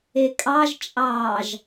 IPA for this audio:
e kʼ ɑ ʒ t͡ʃʼ ɑː ʒ

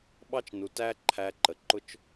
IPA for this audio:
ɓ ɑ˦ t͡ʃ n u˨ t æ˦ ǃʰ æ˧ ǃ ə˨ ǃ ʊ˦ t͡ʃ

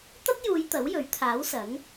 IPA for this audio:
t̪ ɐ˥ t̚ j uː˨˧ j t̪ ɐ˨˥ w j ɵ˨˥ ɥ t̪ʰ aː˨˥ w s ɐ˨˥ ŋ

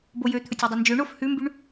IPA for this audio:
b o j ø t̪ʰ ɵ tʲ y dˤ œ n d͡ʒ ø ɳ o f h ʉ m b y ɳ

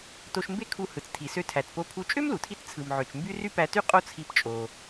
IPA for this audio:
t o˧ ʃ m b e˥ kʰ u˧ h ɯ˩ t͡s tʰ i˩ s ø˧ tʰ æ˩ t p o˧ pʰ u˧ t͡ʃʼ ø˥ m l u˩ tʰ i˧ t t͡sʰ ɯ˩ m ʕ ø˩ t͡ʃ m b y˥ r y˥ p æ˧ t y˥ qʼ o˥ t͡sʰ i˧ p t͡ʃʼ o˩

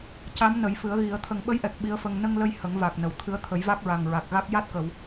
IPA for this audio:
c a˧˥ m n ə˨˩˦ j f ɨ˨˩˦ ə̯ ɣ i˨˩˦ ə̯ t̪ʰ ə˨˩ ŋ ɓ ə˧˥ j ʔ ɛ˨˩ k̚ ɓ i˧˥ ə̯ f ə˧ ŋ n ə˧ ŋ l ə˧ j h ə˨˩˦ ŋ v a˨˩ k̚ n ə˨˩˨ w t̪ʰ ɨ˧˥ ə̯ t̪ʰ ə˨˩˦ j v a˦˥ k̚ ɹ a˨˩ ŋ ɹ a˨˩ k̚ ɣ a˦˥ k̚ j a˦˥ t̚ k ə˨˩˨ w

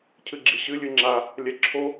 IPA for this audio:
cʰ ɨ ɡ͡ǁ i ɕ ɨ lʲ ɨ ŋ͡ǁ a | lʲ ɛ ǁʰ o

